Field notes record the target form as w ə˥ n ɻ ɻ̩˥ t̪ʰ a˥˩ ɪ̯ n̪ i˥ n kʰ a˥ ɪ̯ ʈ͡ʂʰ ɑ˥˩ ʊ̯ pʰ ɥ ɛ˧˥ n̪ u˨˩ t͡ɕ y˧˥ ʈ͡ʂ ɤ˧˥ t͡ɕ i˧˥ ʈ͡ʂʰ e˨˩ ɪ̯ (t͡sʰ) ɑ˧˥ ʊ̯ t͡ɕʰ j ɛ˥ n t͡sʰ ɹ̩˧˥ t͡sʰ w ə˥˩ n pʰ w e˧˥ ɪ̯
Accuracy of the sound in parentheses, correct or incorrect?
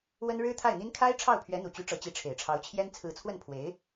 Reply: incorrect